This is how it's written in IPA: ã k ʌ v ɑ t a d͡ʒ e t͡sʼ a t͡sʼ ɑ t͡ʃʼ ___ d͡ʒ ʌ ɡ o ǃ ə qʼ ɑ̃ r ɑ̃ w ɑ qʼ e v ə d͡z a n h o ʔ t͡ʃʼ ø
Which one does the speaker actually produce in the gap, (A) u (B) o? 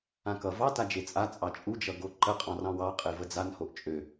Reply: A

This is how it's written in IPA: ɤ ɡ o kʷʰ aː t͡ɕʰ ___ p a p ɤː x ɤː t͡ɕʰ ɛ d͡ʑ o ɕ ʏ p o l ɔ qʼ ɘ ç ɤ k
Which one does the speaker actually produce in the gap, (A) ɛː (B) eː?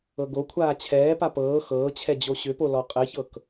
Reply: A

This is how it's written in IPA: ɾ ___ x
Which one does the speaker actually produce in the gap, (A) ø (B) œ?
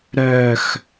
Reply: B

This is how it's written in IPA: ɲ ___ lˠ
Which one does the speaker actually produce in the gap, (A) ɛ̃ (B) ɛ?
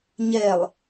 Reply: B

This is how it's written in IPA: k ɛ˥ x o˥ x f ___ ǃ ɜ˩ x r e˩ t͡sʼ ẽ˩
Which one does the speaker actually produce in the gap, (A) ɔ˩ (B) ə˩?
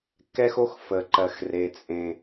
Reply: B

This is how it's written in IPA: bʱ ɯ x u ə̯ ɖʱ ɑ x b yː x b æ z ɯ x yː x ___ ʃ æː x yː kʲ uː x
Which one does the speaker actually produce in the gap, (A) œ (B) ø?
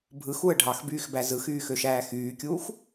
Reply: B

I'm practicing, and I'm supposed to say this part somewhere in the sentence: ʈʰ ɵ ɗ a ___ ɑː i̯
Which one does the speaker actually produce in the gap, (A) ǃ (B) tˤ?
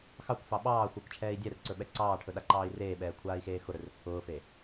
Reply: A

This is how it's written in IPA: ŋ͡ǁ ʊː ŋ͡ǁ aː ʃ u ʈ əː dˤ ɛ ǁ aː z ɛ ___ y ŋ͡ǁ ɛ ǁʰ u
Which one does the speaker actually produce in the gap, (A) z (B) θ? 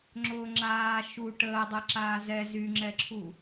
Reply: A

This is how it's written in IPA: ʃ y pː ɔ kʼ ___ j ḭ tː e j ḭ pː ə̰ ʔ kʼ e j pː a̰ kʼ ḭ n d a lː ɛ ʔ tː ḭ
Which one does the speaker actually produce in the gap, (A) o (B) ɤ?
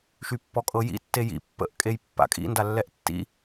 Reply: B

